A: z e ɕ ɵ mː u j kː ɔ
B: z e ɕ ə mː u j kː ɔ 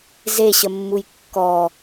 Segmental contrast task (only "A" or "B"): B